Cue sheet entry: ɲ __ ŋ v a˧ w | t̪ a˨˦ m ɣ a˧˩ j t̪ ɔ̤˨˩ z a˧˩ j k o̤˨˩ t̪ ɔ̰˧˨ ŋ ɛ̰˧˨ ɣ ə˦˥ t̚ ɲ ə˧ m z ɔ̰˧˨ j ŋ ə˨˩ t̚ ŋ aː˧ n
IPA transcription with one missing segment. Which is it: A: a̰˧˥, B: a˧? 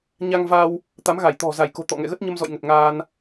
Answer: B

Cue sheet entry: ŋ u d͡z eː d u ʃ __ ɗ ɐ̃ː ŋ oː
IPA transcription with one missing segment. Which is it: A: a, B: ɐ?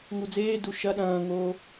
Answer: B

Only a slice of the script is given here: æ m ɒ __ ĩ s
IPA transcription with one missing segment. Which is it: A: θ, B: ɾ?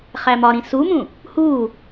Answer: B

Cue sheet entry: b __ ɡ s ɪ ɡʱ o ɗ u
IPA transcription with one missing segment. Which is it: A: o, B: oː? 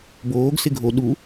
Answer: B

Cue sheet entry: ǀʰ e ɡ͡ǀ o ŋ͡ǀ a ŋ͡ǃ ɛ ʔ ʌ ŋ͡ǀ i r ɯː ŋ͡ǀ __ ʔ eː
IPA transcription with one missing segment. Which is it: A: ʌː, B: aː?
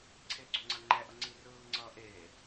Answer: A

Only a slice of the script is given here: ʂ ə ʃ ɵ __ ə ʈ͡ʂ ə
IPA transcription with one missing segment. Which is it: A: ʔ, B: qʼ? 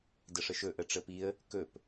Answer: A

